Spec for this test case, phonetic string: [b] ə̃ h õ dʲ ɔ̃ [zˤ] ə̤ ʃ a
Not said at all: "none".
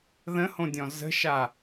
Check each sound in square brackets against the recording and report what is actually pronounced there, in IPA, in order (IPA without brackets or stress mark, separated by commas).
ð, z